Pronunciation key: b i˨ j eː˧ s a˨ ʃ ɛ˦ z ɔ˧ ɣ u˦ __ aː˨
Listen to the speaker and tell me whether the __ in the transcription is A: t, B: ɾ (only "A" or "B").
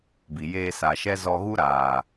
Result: B